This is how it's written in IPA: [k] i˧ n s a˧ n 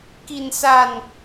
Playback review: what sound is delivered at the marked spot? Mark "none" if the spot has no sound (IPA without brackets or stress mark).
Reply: k